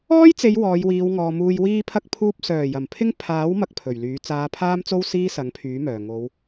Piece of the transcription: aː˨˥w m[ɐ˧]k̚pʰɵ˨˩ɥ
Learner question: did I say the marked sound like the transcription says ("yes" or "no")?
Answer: no